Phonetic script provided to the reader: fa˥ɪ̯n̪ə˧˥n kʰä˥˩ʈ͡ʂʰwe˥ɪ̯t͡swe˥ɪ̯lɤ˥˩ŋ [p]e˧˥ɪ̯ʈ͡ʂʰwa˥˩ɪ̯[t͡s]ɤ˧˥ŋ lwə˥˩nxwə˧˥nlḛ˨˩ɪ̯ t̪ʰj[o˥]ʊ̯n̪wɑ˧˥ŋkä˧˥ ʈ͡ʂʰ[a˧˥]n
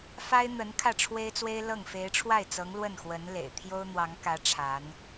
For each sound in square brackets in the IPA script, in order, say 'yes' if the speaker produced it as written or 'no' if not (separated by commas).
no, yes, yes, yes